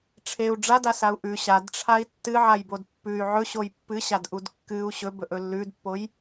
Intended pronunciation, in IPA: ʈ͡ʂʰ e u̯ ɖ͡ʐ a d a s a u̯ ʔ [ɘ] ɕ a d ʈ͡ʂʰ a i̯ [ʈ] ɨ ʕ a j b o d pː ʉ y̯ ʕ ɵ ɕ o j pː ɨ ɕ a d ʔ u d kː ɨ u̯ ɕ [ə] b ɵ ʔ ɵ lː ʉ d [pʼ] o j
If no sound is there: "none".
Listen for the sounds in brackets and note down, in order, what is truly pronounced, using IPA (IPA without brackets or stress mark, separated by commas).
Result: ʉ, tː, ɵ, pː